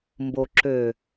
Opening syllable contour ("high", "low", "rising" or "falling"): low